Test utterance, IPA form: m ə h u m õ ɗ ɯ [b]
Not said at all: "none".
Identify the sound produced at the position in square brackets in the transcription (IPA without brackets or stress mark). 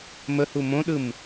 m